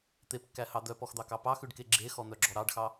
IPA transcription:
t̪ e p kː æ h ɑ d̪ œ p ɔ x d̪ ɑ k ɑ p ɑ x ʉ ɖ k e ɡ͡ǁ e x ɔ n̪ œ ɡ͡ǁ ɔ ɾ ɑ ɖ x ɑ

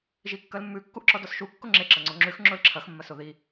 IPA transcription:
ʒ i kː ɐ l mː ʉ kː u ʔ ǁ ɔ d ɔ s ʃ u kː ʊ ŋ͡ǁ e ǁ ɐ ŋ͡ǀ o ŋ͡ǁ ʉ x ŋ͡ǁ ʊ l ǁʰ ɐ x mː ɐ s o ð i

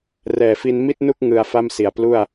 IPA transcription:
r ɛː˨˩ f i˧ n m i˥˩ t̚ n u˥˩ k̚ ŋ ɯ˧ a̯ f a˥˩ m s i˨˩ a̯ p l u˥˩ a̯

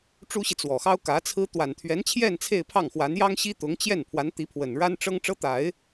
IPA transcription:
ʈ͡ʂ u˥ ɕ i˨ t͡s w ɔ˨˩ x ɑ˥ ʊ̯ k ä˧˥ t͡sʰ ɹ̩˥ t̪ w a˨˩ n t̪ʰ ɥ ɛ˧˥ n t͡ɕʰ j ɛ˥˧ n t͡sʰ e˥˧ ɪ̯ pʰ ɑ˥˩ ŋ x w a˧˥ n j ɑ˥ ŋ ɕ i˥ t̪ ʊ˧˥ ŋ t͡ɕ j ɛ˥˩ n pʰ w a˧˥ n t̪ i˧˥ pʰ w ə˨˩ n ɻ a˥ n ʈ͡ʂ ɤ˥ ŋ ʈ͡ʂ ɤ˥ t̪ a˨˩˦ ɪ̯

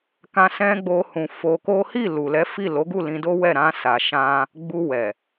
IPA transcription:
k ã˧ s ɛ̃˧ ɡ͡b o˧ h ũ˨ f o˧ k o˦ h i˦˨ l u˨ l ɛ˨˦ f i˦˨ l o˨˦ ɡ u˦˨ l ĩ˧ d o˦ w ɛ˦˨ ɾ ã˧ s a˨ ʃ ã˧ | ɡ͡b u˧ w ɛ˨

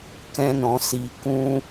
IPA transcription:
k ɛ̃˦ n ɔ̃˧ s i˧ k ũ˧

